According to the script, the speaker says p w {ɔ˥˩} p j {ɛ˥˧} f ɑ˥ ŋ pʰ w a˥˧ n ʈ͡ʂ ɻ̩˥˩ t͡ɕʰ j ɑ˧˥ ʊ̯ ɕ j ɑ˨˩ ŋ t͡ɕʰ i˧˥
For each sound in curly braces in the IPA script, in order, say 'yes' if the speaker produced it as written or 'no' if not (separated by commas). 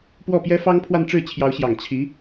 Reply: yes, no